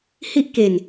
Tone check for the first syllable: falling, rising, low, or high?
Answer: high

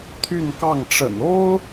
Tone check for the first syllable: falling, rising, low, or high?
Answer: falling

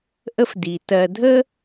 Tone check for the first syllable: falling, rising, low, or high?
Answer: high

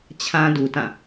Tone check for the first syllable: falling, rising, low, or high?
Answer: high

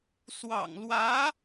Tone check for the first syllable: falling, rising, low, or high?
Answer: low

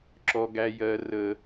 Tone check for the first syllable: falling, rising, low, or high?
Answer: high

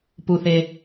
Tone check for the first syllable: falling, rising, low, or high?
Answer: low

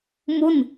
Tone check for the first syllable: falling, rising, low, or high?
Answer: falling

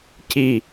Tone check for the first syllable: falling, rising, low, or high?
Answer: low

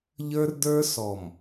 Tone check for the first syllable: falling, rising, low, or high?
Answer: high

